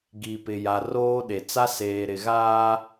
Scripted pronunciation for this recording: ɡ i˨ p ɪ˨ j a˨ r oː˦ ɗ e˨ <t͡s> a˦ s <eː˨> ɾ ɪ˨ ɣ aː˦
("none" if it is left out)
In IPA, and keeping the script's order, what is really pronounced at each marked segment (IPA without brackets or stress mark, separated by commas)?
t͡s, eː˨